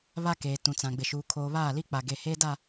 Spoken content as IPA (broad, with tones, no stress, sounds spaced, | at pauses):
β a˦ k eː˨ t ũ˨ t͡s ã˨ ɡ͡b ɪ˨ ʃ uː˨ kʰ oː˨ β aː˦˨ l i˦ k͡p a˨ ɡ e˨ h eː˦ d a˦˨